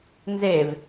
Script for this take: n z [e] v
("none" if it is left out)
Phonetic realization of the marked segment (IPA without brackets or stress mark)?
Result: e